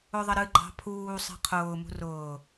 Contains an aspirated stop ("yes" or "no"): yes